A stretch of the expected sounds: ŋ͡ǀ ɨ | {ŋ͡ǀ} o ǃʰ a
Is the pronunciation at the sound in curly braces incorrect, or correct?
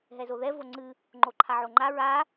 incorrect